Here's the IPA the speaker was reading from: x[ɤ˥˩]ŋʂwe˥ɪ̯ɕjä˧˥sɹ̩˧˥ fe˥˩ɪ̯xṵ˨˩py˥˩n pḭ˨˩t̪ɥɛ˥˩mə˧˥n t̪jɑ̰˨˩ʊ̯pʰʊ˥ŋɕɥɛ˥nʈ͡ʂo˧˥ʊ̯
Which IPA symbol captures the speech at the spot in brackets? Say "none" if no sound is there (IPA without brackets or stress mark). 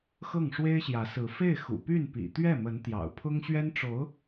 ɤ˥˩